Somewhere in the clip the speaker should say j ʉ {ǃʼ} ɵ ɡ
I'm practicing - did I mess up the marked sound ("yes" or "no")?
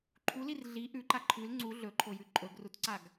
no